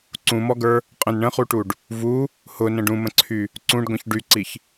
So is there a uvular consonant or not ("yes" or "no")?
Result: yes